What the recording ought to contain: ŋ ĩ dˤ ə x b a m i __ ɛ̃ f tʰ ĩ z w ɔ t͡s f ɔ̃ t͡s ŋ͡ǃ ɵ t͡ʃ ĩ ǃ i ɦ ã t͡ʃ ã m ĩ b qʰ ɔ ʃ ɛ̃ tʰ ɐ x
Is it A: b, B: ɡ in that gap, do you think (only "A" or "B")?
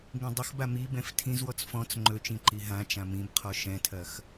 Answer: A